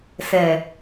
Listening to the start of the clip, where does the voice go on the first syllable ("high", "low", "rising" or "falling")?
low